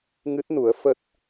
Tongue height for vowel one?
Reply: high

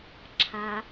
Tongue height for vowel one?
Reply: low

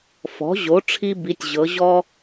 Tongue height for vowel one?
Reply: mid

